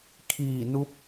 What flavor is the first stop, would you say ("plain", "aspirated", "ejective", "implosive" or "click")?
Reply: aspirated